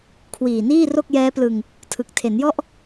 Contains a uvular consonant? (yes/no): no